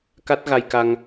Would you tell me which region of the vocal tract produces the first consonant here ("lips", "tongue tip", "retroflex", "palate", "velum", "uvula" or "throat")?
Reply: velum